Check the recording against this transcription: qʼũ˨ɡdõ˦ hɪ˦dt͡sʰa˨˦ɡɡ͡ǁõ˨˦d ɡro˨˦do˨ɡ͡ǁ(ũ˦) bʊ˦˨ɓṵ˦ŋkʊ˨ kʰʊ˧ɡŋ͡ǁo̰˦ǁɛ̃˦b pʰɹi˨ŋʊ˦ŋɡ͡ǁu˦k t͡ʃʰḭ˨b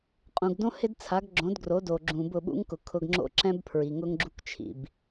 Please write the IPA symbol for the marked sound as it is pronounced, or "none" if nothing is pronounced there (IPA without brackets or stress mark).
ũ˨